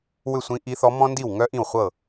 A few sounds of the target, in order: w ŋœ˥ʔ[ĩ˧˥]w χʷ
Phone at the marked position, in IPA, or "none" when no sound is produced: ĩ˥˩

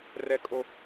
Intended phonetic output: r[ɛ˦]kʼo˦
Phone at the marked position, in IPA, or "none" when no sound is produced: ɛ˦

